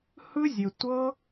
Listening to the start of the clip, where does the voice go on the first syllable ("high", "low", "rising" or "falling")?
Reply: high